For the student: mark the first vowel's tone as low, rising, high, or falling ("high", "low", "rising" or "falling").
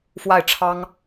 falling